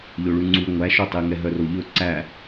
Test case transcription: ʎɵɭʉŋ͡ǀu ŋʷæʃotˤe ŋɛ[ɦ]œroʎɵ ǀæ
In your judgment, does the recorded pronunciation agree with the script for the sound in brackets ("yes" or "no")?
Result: yes